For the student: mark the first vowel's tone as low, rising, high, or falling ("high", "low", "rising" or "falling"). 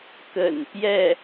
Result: low